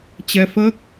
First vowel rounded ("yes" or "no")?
no